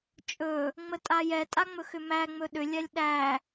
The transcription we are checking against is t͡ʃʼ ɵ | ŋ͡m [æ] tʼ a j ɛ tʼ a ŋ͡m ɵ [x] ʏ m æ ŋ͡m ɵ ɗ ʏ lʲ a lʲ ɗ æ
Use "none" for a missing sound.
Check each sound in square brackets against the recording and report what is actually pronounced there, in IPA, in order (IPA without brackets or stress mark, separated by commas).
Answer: ə, x